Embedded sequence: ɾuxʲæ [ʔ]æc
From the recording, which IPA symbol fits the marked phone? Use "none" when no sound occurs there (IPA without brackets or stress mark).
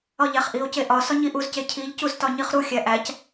ʔ